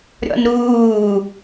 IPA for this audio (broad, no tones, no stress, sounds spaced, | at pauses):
ɾʲ ɔ̰ n ɾ uː